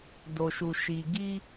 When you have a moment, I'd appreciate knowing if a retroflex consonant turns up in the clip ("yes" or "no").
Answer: no